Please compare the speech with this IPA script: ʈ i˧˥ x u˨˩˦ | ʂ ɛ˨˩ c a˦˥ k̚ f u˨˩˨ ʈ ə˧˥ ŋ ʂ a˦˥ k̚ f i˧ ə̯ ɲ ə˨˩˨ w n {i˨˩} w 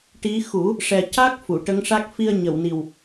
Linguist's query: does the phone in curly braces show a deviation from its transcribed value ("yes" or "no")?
no